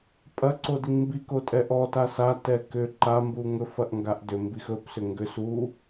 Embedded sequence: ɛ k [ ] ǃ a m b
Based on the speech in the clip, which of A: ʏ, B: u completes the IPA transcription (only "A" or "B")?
A